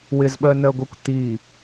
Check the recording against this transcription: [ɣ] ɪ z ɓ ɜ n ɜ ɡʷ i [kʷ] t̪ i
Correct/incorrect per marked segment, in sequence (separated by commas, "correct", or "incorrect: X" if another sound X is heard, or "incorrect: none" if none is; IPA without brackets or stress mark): incorrect: w, correct